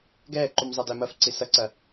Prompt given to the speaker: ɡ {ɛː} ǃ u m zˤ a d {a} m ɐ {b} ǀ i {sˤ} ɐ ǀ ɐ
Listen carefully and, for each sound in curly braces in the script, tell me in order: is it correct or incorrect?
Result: correct, incorrect, incorrect, incorrect

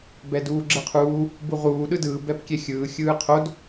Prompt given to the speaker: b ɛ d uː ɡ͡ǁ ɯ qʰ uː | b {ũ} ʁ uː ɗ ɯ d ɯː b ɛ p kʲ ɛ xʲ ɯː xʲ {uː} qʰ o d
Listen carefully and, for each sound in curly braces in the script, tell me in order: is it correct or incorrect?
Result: incorrect, incorrect

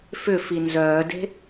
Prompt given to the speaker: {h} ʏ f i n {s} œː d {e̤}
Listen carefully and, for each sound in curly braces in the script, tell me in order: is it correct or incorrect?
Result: incorrect, incorrect, correct

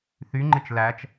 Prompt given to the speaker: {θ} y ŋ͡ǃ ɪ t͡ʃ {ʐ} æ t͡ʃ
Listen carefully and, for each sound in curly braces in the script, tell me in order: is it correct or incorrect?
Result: correct, incorrect

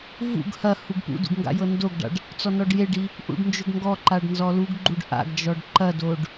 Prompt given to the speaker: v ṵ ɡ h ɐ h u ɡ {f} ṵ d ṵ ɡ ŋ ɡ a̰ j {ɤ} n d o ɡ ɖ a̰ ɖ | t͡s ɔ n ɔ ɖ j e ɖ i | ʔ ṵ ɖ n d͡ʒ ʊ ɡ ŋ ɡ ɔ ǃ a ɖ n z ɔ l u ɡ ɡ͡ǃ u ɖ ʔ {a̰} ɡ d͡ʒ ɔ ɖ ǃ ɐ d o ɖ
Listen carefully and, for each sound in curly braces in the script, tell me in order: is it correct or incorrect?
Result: incorrect, correct, correct

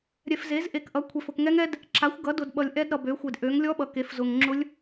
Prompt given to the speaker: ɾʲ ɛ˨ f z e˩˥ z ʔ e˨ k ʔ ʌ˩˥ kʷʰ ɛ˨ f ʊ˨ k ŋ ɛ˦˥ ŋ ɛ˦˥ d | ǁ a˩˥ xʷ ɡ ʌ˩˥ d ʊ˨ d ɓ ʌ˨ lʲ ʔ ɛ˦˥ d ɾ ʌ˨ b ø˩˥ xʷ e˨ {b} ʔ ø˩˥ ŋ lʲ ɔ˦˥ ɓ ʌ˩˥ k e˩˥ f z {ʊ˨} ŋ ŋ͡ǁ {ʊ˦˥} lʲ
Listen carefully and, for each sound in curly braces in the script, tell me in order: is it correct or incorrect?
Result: incorrect, correct, correct

